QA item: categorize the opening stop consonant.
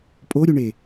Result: ejective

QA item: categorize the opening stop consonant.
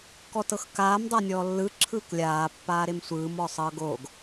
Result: plain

